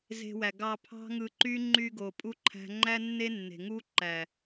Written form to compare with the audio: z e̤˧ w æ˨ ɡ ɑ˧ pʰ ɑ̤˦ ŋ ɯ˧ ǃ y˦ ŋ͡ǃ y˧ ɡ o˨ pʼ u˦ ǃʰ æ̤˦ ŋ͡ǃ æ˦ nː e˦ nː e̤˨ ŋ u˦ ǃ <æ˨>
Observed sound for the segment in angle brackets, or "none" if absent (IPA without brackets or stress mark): æ˨